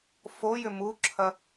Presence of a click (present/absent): present